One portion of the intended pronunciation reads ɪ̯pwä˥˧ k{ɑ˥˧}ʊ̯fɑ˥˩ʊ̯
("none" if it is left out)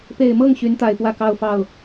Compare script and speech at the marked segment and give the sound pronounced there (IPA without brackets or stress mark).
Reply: ɑ˥˧